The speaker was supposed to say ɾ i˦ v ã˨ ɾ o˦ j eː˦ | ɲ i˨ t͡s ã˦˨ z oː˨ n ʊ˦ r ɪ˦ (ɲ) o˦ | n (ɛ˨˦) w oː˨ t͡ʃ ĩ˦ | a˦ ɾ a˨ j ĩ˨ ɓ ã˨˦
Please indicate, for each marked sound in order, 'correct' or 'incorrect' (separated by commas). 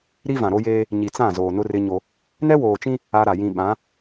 correct, incorrect